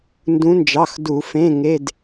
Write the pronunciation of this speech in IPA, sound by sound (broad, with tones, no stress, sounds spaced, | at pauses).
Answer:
n d ũ˩˧ n d͡ʒ ɑ˩˧˩ x d u˧˩˧ f ẽ˧˥˧ ŋ e˧˥˧ d